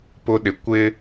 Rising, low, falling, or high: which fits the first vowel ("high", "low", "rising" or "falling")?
high